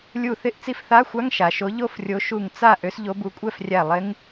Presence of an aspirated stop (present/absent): absent